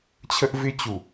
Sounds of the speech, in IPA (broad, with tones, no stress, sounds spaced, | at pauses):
t͡ɕʰ ə˦ ʔ v ɪ˦ t͡ɕ u˨